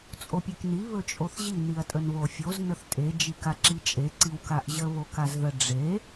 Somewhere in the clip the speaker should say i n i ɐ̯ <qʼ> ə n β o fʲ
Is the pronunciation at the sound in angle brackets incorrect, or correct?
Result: incorrect